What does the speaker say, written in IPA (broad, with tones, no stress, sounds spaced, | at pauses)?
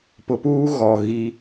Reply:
p ʊ˨ p uː˦ ɣ ɔ˨ ɣ i˦